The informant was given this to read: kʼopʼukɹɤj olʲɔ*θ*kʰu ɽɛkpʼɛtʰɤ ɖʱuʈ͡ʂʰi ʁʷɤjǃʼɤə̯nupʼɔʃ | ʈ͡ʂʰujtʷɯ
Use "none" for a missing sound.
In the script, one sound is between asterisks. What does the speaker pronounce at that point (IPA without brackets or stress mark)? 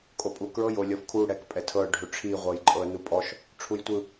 f